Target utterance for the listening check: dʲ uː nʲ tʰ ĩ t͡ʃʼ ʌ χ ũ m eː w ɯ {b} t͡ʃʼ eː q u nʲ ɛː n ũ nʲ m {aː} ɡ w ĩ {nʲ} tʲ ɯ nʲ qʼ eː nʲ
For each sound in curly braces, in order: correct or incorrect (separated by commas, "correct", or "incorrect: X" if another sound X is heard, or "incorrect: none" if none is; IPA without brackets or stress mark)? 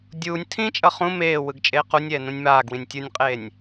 incorrect: ɡ, correct, correct